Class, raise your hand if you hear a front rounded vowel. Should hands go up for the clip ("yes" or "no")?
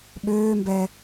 yes